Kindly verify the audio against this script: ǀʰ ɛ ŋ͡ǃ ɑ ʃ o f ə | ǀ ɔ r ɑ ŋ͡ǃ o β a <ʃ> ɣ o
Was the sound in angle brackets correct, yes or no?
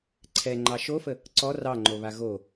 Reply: no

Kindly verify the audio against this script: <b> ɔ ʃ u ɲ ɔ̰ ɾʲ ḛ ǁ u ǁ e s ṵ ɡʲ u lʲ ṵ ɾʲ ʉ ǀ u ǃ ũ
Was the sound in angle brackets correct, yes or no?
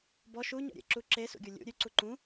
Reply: yes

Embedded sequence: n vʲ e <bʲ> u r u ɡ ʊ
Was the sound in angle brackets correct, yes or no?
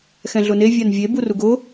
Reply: no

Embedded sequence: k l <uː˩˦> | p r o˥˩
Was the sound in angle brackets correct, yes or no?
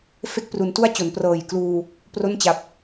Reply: no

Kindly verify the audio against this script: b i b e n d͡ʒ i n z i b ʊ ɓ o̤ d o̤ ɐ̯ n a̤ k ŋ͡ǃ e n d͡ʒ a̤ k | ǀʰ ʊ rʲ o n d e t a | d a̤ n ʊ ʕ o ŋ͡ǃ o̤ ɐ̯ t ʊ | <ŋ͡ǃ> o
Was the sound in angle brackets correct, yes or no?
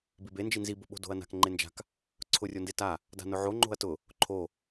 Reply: no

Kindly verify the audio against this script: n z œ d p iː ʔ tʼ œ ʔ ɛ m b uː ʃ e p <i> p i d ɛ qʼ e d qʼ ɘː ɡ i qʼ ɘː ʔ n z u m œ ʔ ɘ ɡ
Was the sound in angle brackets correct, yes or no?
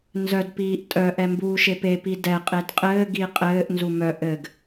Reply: no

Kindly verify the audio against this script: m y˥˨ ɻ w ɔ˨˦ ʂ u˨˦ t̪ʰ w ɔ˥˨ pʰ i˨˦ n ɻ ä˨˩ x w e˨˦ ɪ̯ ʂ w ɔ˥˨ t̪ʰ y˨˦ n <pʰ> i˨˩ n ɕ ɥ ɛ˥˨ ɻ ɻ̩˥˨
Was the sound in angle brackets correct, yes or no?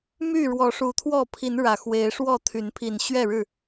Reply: yes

